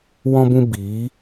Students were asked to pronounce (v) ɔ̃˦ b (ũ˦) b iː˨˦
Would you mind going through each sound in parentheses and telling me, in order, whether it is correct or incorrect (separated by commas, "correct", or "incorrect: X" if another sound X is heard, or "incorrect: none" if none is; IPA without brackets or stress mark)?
incorrect: w, correct